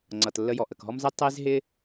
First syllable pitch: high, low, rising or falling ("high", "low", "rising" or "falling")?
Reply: low